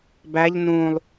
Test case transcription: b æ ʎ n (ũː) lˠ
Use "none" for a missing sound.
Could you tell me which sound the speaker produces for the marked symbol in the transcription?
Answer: ũː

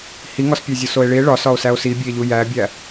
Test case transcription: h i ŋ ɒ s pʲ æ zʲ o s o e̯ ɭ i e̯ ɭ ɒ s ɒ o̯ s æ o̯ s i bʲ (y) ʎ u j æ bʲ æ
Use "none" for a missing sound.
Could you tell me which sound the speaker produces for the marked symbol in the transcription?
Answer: e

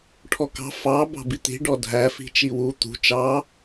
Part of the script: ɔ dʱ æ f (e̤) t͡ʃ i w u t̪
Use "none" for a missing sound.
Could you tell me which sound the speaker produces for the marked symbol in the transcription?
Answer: i̤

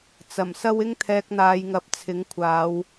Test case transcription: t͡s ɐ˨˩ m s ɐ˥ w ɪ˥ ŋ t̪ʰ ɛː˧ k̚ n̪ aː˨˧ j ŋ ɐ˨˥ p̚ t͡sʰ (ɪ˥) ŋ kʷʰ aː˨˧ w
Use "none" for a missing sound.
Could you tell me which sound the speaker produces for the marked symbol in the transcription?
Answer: ɪ˨˥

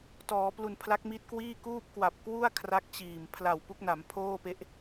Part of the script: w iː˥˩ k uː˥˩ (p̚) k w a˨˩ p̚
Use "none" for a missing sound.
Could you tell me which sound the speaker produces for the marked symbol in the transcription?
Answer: p̚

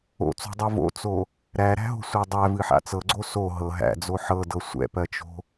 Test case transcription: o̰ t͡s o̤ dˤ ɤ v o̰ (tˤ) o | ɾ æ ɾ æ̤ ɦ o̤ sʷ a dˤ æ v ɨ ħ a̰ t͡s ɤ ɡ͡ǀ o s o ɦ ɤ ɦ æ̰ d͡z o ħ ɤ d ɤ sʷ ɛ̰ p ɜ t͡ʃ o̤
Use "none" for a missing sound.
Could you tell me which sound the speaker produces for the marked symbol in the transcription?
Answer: t͡s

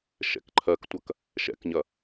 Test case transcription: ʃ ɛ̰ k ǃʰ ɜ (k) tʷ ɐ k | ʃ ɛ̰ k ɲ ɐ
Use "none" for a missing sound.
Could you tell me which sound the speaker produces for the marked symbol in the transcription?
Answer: k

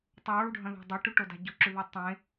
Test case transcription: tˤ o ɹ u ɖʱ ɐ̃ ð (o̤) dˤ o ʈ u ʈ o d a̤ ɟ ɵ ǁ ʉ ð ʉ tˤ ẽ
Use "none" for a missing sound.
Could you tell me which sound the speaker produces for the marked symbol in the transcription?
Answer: o̤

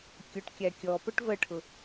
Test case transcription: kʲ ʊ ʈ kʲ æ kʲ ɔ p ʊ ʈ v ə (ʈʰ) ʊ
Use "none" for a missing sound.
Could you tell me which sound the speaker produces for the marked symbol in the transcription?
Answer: ʈʰ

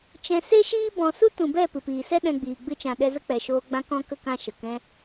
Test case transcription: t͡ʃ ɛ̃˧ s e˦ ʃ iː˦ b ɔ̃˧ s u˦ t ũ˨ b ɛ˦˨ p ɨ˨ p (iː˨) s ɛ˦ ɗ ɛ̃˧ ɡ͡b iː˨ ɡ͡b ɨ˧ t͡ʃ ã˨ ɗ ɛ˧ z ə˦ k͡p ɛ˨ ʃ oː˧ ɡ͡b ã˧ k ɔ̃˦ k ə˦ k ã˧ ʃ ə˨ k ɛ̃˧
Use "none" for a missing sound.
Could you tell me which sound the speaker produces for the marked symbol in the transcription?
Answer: iː˨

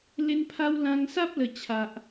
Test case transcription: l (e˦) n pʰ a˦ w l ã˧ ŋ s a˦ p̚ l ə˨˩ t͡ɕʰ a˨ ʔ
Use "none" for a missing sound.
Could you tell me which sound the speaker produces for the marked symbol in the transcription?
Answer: e˦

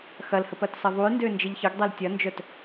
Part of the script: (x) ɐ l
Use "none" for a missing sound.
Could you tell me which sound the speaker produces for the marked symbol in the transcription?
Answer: x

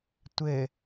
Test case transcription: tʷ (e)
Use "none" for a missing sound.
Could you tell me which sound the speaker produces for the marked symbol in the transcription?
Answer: ɘ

